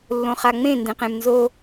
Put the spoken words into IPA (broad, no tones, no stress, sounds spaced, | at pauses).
lː õ χ a ŋ͡m ẽ n d ẽ q ẽ m n z o